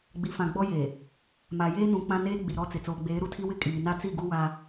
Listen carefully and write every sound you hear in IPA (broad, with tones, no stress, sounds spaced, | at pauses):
ɡ͡b i˨ f ã˨ ɡ͡b ɔ˦ j e˨ | m a˨ j eː˦ n ũ˨ k͡p ã˦ n eː˦ ɡ͡b i˨ ɾ ɔ˦ t͡s ɪ˨ t͡s oː˨ ɡ͡b eː˨˦ ɾ u˦ tʰ i˦ w ɪ˦ kʼ iː˨ n a˦ t͡s i˦˨ ɡ u˦ w a˦